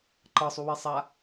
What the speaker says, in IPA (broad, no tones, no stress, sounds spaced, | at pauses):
ǃ ɤ sˤ u w i sˤ a